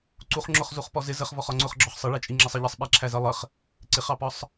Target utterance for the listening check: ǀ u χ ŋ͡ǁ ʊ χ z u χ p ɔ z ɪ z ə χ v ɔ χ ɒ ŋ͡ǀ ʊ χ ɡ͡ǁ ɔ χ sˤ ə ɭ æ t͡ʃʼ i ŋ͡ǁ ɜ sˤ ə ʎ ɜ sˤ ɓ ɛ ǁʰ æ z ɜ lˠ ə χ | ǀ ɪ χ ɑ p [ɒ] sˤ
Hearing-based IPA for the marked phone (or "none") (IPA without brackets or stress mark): ɒ